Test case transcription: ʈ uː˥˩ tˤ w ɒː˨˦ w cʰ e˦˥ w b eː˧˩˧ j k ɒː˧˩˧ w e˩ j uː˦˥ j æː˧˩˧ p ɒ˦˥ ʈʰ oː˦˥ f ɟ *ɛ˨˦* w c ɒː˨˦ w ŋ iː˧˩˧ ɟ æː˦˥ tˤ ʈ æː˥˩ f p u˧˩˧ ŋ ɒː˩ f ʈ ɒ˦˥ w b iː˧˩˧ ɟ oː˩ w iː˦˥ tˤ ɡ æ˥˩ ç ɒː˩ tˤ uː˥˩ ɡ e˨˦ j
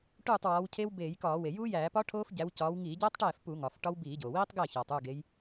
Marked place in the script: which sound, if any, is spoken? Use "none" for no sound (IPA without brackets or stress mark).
æ˨˦